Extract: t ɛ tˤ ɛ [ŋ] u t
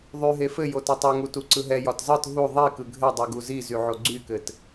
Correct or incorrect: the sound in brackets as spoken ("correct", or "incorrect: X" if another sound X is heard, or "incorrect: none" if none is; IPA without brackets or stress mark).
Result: correct